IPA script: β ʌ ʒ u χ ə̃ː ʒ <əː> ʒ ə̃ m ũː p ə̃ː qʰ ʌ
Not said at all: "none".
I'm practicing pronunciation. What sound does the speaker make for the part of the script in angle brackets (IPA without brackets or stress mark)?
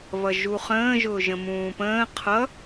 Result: ʊː